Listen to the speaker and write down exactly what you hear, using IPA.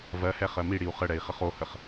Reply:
v ɜ h ɛ χ ɜ m i ɽ i u̯ χ ə ɽ ɛ i̯ χ ə χ o h ə χ

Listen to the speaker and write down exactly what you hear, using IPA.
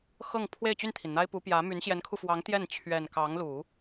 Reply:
x ɤ˥˧ ŋ pʰ w e˥˧ ɪ̯ t͡ɕ y˥˩ n t̪ʰ i˩ n n̪ a˥ ɪ̯ p u˧˥ p j ä˧˥ m y˧˥ n ɕ j ɛ˧˥ n kʰ u˧ f w ɑ˧˥ ŋ t̪ j ɛ˥˩ n t͡ɕʰ ɥ ɛ˨˩ n k ɑ˧˥ ŋ l u˨˩˦

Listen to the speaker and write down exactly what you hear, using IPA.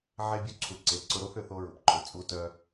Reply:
ʕ e˦ bʲ u˦ ǀʰ u˨ ǀ e˨ ǀ ʊ˦ ɾ o˦ θ ʏ˨ θ o˦ ɹ ʊ˨ p ǃʰ ʊ˨ t͡sʼ u˦ t œ˦

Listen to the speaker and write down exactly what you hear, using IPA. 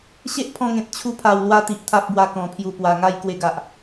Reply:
ɕ e˦ ʔ pʰ ɔ̃˧ ŋ ẽ˨ t̚ t͡ɕʰ u˧ pʰ a˨˩ w l w a˧ t̪ i˨ ʔ t̪ʰ a˦ p̚ b w a˧ k ɔ̃˨˩ pʰ j u˨˩ p w a˨˩ ŋ a˥˧ j k w e˧ ɡ a˨ ʔ

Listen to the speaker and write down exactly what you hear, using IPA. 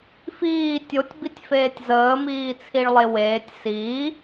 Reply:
f iː tʲ o tʲ b i tʲ f eː tʲ z əː m iː t͡sʰ i ɭ lˠ e w eː tʲ s iː

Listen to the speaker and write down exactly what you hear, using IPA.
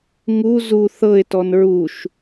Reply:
ŋ u z u θ ɤ ɪ̯ t ɔ n ɹ u ʃ

